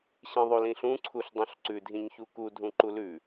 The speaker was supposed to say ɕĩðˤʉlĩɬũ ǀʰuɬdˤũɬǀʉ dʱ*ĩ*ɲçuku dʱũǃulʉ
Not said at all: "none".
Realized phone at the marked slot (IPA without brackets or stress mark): ĩ